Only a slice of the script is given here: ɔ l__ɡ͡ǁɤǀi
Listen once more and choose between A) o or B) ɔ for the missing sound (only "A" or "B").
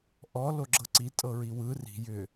A